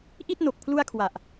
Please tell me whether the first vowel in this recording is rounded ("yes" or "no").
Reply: no